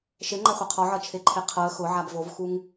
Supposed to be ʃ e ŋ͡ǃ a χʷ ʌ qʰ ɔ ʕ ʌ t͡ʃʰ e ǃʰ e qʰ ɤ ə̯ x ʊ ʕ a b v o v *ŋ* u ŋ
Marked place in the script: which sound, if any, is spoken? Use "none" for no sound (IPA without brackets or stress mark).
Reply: x